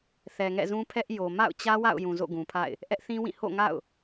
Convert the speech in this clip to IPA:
θɛ˨ŋɛ̰˦˨zũ˦ pʰɛ˦ʔjo˨ ma̰˦˨ʊ̯t͡ɕä˦wa̰˦˨ʊ̯ jũ˨zo̰˦˨ ɡũ˨pʰa̰˦˨ɪ̯ | ʔɛ˦ʔθĩ˦wĩ˦˨ ho̰˦˨ŋa̰˦˨ʊ̯

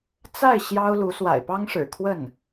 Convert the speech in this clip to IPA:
t͡sa˥˩ɪ̯ ɕjɑ˥ʊ̯lu˧˥ swa̰˨˩ɪ̯pɑ˥ŋʂɻ̩˨˩ kʰwə˥˩n

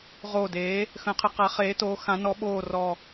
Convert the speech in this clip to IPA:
ʁoː˨˩deː˩˧ | xə̃ː˩˧qʰə˩˧qa˩˧χeː˩˧ toː˩˧xã˩˧ nɔ˩˧ɓoː˨˩ rɔ˨˩

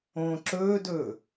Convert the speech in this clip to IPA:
õːǁɵːdɵː

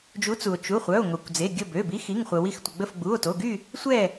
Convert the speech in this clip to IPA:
d͡ʒu˨˥t͡su˩o̯ t͡ʃu˩˧˩χʷœ˩˧˩o̯ ŋo˩kʷd͡ze˩˧˩ ɡʲə˧˩bø˩˧˩bi˨˥x i˩˧˩ŋχʷə˩wi˧˩xtʷə˩ ɡ͡bə˧˩fɡ͡bu˩˧˩o̯to˩˧˩ɡy˥˨ | sʷɛ˥˨

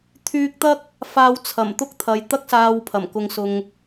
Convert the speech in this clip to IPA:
t̪ʰyː˧k̚t̪ɐ˥k̚ | faː˧wt͡sʰɐ˨˩m t̪ʊ˥k̚t̪ʰɐ˨˧j t̪ɐ˥k̚saː˧wpʰɐ˨˩m kʊ˧ŋsʊ˧ŋ

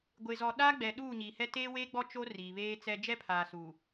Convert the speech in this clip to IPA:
ɡʷe˨zɔ˨ ɗa˦ɡ͡bɛ˨ ɗuː˦˨ɲiː˨hɛ˦ teː˦weː˦ɡ͡bɔ˦ t͡ʃo˦ riː˨βeː˦t͡sɛ˦ d͡ʒɛ˦pʰaː˨ su˨

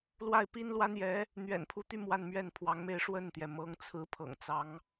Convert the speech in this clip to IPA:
lwa˥˩ɪ̯pi˥nlwa˥njɛ˧˥ | n̪ɥɛ̰˨˩npʰu˧˥t̪y˥˧ mwa˥˧nmɥɛ˥˩npʰwɑ˧˥ŋme˥˧ɪ̯ ʂwə˥˩nt̪jɛ˩ mɤ˧˥ŋt͡sʰɹ̩˧˥ pʰɤ̰˨˩ŋt͡sɑ˧˥ŋ

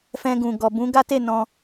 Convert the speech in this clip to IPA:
fɛ̃˧ɡũ˨ ɡɔ˨ bũ˨˦ɡa˦te˦˨ nɔ̃˧

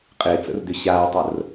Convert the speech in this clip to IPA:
qʼɪːt͡sə̰rdʏ ɕaːtˤər

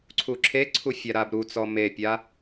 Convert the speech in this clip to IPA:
ǀʰuǁʰeǀʰu fʲaɾabɾut͡sɔ mepʲa

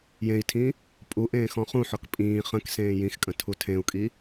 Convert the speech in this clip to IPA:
jẽi̯tʰĩ | pʼuʔẽː xɔ̃χũħɔk pʼĩː χə̃k sẽːjĩxkʼə̃ tʰutʰẽu̯kʼi

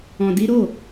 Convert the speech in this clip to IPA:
ɔ̃˧di˦ ɾo˦˨

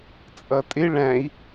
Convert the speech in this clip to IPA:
t͡sʼʌtʼɪ ɭæ̃i̯

